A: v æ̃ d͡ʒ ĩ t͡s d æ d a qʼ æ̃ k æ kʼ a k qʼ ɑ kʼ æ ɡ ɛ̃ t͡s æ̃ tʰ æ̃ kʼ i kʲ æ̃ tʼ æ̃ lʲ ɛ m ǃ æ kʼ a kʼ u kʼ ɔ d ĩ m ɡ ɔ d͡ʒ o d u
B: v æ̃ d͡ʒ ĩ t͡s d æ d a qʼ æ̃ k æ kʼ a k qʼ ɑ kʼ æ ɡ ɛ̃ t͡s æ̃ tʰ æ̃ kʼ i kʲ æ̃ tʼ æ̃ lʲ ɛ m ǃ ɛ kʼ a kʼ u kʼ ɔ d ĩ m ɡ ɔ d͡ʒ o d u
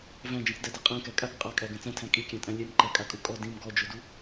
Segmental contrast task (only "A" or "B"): A